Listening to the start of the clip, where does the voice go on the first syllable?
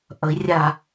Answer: rising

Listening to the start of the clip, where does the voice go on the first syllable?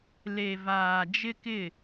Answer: low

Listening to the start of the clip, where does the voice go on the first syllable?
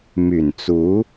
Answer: low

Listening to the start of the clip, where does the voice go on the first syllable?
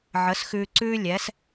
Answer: rising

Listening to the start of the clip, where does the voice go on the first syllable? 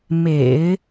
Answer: low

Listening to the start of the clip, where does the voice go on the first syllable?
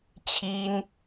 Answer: high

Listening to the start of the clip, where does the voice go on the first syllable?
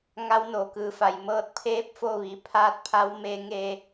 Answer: rising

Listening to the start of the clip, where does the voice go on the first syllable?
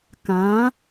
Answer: rising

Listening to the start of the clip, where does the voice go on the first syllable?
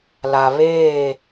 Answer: low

